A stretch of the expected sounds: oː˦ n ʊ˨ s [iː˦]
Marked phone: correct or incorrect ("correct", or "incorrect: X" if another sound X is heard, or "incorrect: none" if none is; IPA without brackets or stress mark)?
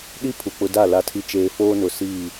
incorrect: iː˦˨